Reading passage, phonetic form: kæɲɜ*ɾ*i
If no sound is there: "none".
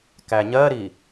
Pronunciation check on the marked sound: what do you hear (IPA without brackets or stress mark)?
ɾ